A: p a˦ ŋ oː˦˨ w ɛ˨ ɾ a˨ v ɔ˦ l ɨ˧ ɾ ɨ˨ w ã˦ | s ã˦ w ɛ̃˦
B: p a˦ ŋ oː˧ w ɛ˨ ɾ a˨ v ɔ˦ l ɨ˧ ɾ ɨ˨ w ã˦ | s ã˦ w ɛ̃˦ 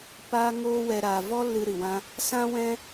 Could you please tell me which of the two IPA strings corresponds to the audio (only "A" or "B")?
B